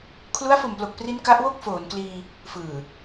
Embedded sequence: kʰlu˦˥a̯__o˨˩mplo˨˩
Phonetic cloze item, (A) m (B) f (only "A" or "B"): B